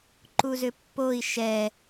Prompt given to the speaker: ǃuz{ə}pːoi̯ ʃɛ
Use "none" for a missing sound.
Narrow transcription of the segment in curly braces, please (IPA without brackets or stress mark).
ʏ